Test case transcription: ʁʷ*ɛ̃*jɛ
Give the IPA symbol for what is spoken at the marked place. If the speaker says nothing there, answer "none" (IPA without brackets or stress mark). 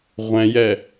ɛ̃